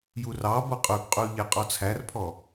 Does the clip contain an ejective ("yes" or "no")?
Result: yes